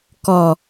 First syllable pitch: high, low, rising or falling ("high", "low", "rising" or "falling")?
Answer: low